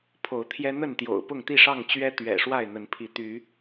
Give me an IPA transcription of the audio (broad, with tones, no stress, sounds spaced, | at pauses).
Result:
pʰ o˨˦ ʊ̯ t̪ʰ j ɛ˦ n̪ ə˥˨ n t̪ j o̰˨˩ ʊ̯ p ʊ˥˨ ŋ t̪ i˥˨ ʂ ɑ˥˨ ŋ t͡ɕ ɥ ɛ˦ t̪ ɥ ɛ̰˨˩ ʂ w a˥˨ ɪ̯ n̪ ə˨˦ n pʰ i˨˦ t̪ y˨˦